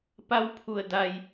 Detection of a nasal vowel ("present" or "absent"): absent